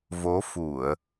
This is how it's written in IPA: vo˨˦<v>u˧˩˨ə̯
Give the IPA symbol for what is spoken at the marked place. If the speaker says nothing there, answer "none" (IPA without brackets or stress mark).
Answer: f